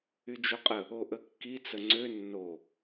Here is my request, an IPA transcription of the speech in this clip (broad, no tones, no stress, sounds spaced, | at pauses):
y d͡ʒ o qʼ ə | o ʔ ə kː i t͡s ə ŋ͡ǀ ø nː o